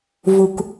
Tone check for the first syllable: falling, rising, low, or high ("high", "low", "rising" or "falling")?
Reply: low